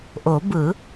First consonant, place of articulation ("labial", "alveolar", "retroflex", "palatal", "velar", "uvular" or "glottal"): glottal